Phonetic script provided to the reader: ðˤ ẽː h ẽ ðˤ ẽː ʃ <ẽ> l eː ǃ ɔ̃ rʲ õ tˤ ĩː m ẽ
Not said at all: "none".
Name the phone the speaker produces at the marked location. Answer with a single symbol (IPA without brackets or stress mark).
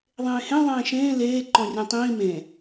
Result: ẽː